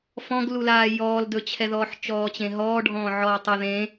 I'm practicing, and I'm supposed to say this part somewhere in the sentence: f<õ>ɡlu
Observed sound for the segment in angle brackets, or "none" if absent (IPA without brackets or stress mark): ɔ̃